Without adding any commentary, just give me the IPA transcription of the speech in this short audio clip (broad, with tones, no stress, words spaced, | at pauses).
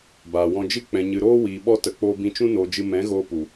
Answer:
baː˨wɔ̃˧d͡ʒɨ˦ k͡pɛ̃˨ɲɨ˨ɾoː˦ wiː˨ɓɔ˧tə˨ k͡poː˧bĩ˧t͡ʃũ˦ noː˧d͡ʒɨ˧ mɛ̃˨˦ɣoː˧pu˨